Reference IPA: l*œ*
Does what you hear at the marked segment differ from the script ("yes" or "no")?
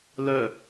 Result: no